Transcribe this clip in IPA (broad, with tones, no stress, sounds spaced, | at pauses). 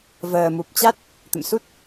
v əː˨˩ m u˨˩ p̚ t͡ɕ a˦˥ t̚ | t̪ ə̰˧˨ m s u˦˥ t̚